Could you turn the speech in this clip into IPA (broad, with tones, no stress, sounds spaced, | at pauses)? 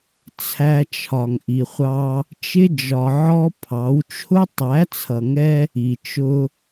t͡sʰ æ˧ t͡ʃʰ ɒ˨ ŋ ʔ i˨ χʷ ɑ˧ | t͡ʃ ɪ˧ d͡ʒ ɒ˨ ʕ ɔ˦ pʰ ɑ˨˦ w t͡ʃʰ ʊ˦ tˤ æ˨˦ t͡sʰ ʌ˨ ŋ ɛ˧ | i˨ t͡ʃ ʊ˧